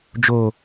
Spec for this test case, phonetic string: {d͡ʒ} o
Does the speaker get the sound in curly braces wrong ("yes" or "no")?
no